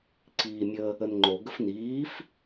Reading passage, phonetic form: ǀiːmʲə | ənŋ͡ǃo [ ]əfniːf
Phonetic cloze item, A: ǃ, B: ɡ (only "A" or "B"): B